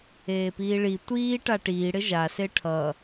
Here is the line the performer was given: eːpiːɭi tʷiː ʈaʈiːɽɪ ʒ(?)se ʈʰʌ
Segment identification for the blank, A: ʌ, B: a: B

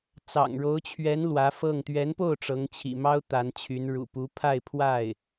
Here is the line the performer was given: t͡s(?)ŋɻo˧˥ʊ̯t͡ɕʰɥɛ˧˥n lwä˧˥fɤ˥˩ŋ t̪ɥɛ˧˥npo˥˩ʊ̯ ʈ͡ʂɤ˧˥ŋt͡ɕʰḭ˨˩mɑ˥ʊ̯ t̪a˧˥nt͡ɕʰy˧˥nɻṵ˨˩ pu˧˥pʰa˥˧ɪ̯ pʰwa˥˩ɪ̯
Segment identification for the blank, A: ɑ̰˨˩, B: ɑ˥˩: A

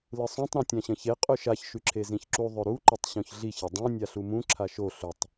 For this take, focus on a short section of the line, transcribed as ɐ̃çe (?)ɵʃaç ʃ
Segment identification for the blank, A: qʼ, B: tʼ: A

